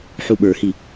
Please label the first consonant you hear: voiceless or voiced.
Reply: voiceless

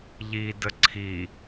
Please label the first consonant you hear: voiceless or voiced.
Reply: voiced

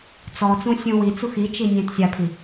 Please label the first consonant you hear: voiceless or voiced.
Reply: voiceless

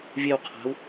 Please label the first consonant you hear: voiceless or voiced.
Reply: voiced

